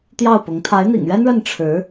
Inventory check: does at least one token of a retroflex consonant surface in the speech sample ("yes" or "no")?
yes